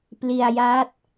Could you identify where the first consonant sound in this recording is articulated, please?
labial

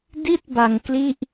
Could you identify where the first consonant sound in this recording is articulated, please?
alveolar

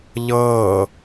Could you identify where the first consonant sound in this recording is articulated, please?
palatal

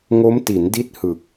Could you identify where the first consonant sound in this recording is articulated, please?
velar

